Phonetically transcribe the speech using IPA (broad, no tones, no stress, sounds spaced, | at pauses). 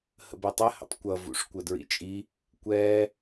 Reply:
h ə̰ b ɛ tˤ ɘ h ə̰ tˤ kʷ ʌ v ṵ ʂ kʷ ə d ɹ ḭ t͡ʃʼ i | kʷ ɛ